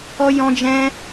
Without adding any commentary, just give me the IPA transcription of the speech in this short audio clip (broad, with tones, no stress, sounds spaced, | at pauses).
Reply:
ɔ˦ j ɔ̃˦ d͡ʒ ɛ̃˦